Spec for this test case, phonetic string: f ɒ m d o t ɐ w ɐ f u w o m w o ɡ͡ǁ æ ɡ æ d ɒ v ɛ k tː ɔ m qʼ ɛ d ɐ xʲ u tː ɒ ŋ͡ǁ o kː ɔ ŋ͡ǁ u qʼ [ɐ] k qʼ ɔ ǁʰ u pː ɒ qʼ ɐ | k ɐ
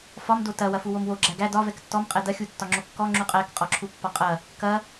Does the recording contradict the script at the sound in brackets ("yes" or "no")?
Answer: yes